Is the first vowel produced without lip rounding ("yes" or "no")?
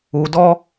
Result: no